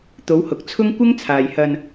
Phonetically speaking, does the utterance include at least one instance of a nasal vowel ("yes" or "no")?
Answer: no